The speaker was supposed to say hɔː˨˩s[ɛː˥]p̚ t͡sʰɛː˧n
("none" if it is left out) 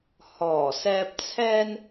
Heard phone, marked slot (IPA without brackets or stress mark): ɛː˧